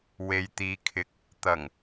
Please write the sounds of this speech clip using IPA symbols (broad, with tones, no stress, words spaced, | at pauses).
we˨jt̪iː˨kʰɪ˨˥k̚ | t̪ɐ˨˩ŋ